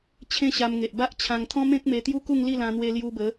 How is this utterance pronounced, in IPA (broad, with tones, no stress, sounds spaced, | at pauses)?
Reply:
t͡ɕʰ ẽ˦ ɕ a˧ m ŋ e˨ ʔ b a˦ ʔ t͡ɕʰ ã˧ ŋ t̪ʰ ɔ̃˦ m ẽ˦ k̚ m e˧ t̪ j u˦ k u˥˧ ŋ l i˥˧ l ã˧ n̪ w e˧ l j u˧ b ə˨˦